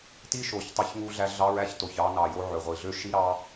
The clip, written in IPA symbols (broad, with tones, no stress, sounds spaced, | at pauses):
t i˦ ʃ o˨ ç tˤ æ˧ ç ŋ u˧ ɮ æ˧ ɮ ɑ˦ ɹ æ˦ ç t o˨ ç ɑ˧ n ɑ˨ j o˧ ʕ ø˨ ʁʷ i˨ ɮ ø˦ ʃ i˦ ɾ ɑ˦